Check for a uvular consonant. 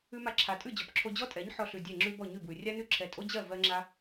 absent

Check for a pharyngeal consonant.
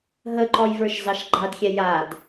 absent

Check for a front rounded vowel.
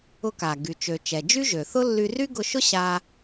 present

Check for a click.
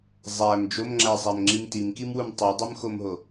present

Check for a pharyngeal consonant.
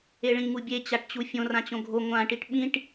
absent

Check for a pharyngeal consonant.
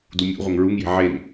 present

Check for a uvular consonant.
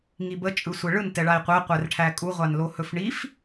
present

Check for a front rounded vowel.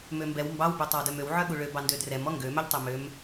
present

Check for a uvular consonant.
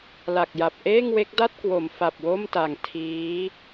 absent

